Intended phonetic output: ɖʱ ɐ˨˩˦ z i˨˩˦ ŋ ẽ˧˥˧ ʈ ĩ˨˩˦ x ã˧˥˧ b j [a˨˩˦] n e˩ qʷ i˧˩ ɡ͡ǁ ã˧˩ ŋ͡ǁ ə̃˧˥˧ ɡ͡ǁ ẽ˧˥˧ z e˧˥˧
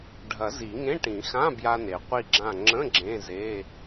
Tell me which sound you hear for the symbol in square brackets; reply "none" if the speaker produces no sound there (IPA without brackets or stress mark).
a˧